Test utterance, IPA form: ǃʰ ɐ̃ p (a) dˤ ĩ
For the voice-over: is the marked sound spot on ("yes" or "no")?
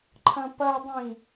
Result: no